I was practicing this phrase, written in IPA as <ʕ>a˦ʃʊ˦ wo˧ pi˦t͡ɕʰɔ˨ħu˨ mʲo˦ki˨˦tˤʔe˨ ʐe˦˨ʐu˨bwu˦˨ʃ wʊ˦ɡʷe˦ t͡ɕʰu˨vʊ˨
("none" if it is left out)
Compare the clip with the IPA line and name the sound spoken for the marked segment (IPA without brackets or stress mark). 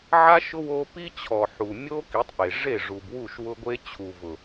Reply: ʕ